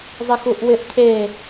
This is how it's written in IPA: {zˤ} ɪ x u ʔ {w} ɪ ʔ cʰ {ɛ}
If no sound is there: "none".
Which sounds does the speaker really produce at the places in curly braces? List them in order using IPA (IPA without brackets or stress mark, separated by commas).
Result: zˤ, w, e